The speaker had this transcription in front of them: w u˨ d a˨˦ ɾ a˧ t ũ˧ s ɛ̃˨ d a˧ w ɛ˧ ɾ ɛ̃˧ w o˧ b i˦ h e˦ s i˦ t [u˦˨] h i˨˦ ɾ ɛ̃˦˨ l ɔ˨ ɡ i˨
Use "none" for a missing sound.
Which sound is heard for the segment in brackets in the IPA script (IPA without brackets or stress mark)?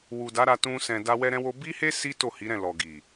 o˦˨